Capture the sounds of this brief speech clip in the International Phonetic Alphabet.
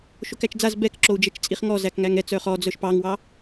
ʃokæt͡ʃd͡zaz bɛkǁou̯d͡ʒɛt͡ʃ t͡sʼiχŋɔ zækŋæŋɛt͡s œχɔd͡zœʃ pɑŋwɑ

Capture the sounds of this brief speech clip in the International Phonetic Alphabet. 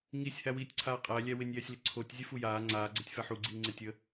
ŋisʲ hæwiːtʲǀʰaːqʼæ lʲæwɪnʲjɛsʲlɪ ǀʰotʲ zʲɛfujaː ŋ͡ǀaːɡ͡ǀɛtʲfæ ħuɡ͡ǀiːŋ͡ǀɪ tʲə

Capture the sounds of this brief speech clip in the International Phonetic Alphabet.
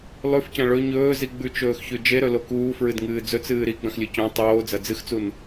lˠʉfcɐ̃ ɭɵ ɲɵːzi ɡ͡bʉt͡ʃɵːxçʉ d͡ʒeɾɵlo kuːfɹɨdŋɨː d͡zɵt͡sɨː ɾiɡ͡bɐ̃xlʲɨ cõ tˤoːd͡zɐ d͡zɨxt͡sun

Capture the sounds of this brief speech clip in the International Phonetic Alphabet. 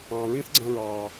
ɑ̃˨ɹĩ˦θɡ͡ǀɐ̃˧ ɹɑː˨

